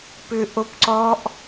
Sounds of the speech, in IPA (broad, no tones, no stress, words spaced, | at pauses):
pʏ ʔopǀɔʔ